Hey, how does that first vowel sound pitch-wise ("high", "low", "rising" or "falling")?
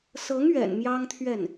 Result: rising